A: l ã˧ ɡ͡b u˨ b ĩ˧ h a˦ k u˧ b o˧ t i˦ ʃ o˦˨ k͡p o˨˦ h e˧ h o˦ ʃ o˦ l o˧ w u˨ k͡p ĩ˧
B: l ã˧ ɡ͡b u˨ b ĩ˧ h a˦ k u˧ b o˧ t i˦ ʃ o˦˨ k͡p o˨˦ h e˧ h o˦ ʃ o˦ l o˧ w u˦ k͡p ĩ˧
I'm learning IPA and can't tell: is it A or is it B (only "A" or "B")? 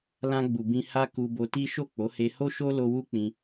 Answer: B